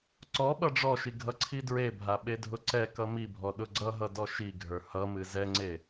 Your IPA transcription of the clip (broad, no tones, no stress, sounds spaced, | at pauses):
ǀ ɔ ɓ ʌ ɖ͡ʐ ɔ ʃ i ɡʱ ʌ ǀʰ i d ɹ e bʱ a ɓ e dʱ ʊ ǀ ɛ k ʌ m i bʱ ɔ ɗ ʊ ɡ͡ǀ ʌ ɦ ʌ d ɔ ʃ i ɡʱ ə˞ h ʌ m ɨ z ɛ ŋ͡ǀ e